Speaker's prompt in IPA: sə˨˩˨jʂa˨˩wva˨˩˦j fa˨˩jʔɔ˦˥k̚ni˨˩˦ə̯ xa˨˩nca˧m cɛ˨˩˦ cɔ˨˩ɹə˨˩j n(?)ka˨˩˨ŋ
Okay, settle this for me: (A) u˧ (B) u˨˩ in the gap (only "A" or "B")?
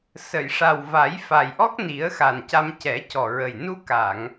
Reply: A